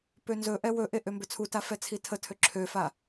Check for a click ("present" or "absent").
present